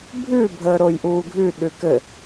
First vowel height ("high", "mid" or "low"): high